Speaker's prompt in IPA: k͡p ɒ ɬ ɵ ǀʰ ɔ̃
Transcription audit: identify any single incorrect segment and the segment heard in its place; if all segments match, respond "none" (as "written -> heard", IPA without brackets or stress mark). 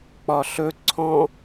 none